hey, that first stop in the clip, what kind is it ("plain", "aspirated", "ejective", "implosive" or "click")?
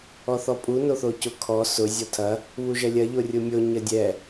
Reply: ejective